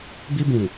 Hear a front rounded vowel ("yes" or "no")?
no